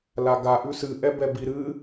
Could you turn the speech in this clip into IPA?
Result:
l a ɡ a ʔ ʉ s ɨ ʔ ɛ b ɛ b i ɾ ɨ

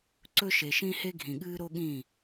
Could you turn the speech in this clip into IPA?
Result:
ǀ ɵ˦ ʃ e˨ ʃ ĩ˦ h e˦ ɡʱ ĩ˨ ɠ ɨː˦ ɾ o˦ ɠ ĩ˦˨

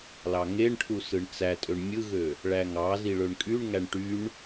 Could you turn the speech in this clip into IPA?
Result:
l ɑ ŋ e ɳ ʈʰ u s ɯ ɳ t͡s æ tʼ ø ɳ mʲ ɯ ɣ ø | ɭ æ ŋ ɑ z i ɭ ø ɳ kʼ y ɳ ŋ æ ɳ ʈ y ɳ

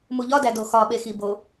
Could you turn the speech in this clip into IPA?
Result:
m u ʎ ɒ d æ d o x ɒ ɓ e x i b o

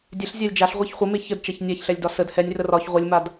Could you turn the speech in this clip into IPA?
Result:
dʲ ɛ ɬ zʲ a lʲ d͡ʒ a ɬ ʁʷ i ç χʷ ə m e ç ə d t͡ʃ ɛ ç nʲ a ç ɬ ɛ lʲ d ɒ s ə d h ɛ nʲ r ə r ɒ ç ʁʷ ə lʲ m a d

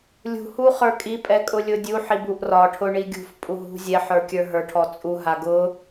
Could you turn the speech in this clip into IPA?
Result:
lʲ ṳ h u χ ə˞ kʼ i pʼ ɛ kʼ ʊ lʲ ʊ dʲ u ħ i b u ʔ r ɒ ʈʰ ʊ ɳ i ɡʲ ṳ f pʼ u ɦ ṳ zʲ ɛ ħ ə˞ kʲ ə˞ ɦ ə˞ ʈʰ ɔ t͡sʼ u ɦ a ɡ ʊ

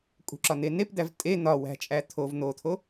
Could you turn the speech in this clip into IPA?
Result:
kʼ ṳ ǁ ɒ n̪ e n e p d̪ æ v tʼ e n̪ ɒ w æ̤ t͡ʃʼ æ t̪ʰ o v n̪ o t̪ʰ o

